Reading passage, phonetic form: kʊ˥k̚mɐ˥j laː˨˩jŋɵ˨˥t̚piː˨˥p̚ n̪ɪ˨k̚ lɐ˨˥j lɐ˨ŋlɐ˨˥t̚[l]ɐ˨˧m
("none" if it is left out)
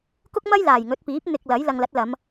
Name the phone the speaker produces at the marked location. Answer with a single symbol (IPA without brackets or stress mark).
l